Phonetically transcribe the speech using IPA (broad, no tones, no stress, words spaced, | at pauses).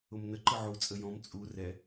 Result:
ʊmnə ǃɯʕu t͡sʼəjɔ̃m t͡sʼu rɛ